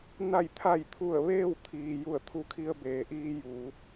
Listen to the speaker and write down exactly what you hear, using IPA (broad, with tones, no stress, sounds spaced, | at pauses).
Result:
n a˧˩ j t̪ʰ a˧˩ j t̪ʰ u˧˩ ə̯ ʋ eː˥˨ w t̪ʰ iː˩ j u˧˩ ə̯ t̪ʰ u˧˥ kʰ i˧ ə̯ b eː˩ ʔ iː˧ j uː˩˧